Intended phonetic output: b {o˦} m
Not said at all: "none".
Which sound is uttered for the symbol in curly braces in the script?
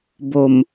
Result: o˨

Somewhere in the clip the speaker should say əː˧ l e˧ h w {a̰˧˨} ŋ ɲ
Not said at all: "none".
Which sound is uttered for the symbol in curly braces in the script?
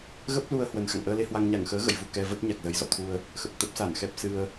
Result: a˧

